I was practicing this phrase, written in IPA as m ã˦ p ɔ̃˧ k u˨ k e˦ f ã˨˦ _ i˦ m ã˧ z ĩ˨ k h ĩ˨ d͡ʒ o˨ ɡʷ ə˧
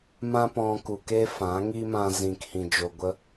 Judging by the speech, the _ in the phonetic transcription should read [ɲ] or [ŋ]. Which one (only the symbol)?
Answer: ŋ